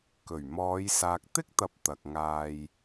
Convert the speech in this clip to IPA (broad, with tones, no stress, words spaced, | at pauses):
kɵ˨˩ɥmɔː˨˧j saː˨k̚t̪ɪ˥k̚t̪ɐ˨˥p̚ t̪ɐ˨k̚ŋaː˧j